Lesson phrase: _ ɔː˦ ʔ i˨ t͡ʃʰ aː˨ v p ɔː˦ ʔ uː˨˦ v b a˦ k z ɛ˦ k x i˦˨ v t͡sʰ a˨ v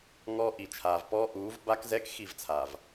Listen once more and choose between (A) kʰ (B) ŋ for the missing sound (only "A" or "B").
B